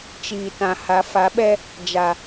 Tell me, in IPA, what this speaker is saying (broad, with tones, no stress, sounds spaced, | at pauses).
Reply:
t͡ʃ iː˨ t ã˨ h a˨˦ f a˨˦ ɓ ɛ˦ | d͡ʒ a˨